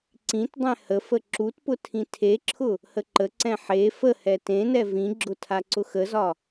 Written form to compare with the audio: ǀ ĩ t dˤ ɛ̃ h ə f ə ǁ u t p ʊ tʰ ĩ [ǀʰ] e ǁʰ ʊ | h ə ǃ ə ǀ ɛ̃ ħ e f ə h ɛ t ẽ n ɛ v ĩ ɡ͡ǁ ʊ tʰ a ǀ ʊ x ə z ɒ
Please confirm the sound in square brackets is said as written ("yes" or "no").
no